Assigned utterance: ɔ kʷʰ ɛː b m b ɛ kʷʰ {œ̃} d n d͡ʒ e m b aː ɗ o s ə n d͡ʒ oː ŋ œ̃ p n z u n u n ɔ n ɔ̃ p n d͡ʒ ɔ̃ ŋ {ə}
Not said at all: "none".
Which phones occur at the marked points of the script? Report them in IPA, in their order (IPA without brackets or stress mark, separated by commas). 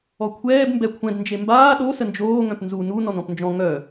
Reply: ɛ̃, œ